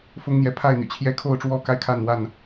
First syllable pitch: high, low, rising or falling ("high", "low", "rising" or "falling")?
high